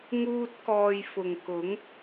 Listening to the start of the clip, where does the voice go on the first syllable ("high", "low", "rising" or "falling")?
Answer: high